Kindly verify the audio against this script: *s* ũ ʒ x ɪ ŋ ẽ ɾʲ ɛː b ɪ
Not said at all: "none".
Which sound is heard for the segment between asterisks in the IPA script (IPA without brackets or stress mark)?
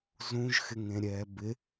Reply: z